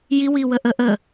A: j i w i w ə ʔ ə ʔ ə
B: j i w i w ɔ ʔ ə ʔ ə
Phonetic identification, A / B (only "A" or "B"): A